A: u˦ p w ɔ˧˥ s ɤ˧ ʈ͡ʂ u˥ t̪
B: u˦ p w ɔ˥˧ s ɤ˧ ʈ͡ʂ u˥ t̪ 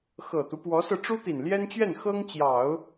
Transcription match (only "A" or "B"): A